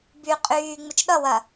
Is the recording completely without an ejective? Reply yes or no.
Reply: no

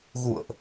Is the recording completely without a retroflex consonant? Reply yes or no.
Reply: yes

